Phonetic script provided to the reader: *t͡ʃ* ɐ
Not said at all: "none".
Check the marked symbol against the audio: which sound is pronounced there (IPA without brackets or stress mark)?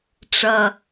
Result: ʈ͡ʂ